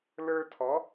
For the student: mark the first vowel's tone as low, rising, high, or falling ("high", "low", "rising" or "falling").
high